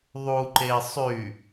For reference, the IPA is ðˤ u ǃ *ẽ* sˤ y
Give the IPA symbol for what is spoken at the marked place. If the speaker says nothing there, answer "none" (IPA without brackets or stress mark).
e